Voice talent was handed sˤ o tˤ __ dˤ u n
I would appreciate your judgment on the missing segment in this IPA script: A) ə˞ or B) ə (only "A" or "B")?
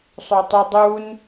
B